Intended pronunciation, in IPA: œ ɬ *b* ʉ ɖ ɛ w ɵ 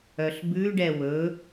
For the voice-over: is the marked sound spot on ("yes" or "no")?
yes